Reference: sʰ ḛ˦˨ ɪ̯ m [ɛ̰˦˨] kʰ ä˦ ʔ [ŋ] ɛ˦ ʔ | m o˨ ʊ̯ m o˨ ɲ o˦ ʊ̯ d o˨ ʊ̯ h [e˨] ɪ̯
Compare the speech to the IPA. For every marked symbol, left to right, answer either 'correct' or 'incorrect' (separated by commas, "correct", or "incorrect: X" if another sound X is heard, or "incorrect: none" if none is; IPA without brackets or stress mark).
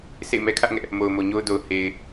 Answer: incorrect: ɛ˦, correct, correct